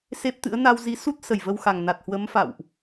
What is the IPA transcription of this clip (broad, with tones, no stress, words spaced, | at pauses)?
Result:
se˦˥p̚t̪ɨ̰˧˥ə̯ na˧wzi˨˦su˦˥t̚ sə˧˩jvə˧wxa˨˩ŋ na˨˩t̚hwə˨˦mfa̰˧˨wʔ